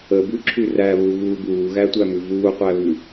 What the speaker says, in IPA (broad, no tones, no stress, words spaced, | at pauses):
əbʉǁʰʉ ræβuɣuː buːɣætʷæmʉ vuːqʷæβʉ